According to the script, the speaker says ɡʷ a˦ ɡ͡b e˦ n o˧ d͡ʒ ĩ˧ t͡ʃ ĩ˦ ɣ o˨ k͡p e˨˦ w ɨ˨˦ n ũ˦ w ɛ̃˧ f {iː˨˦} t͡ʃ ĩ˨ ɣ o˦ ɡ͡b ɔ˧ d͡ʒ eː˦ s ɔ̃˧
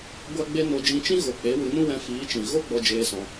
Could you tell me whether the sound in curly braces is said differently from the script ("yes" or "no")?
no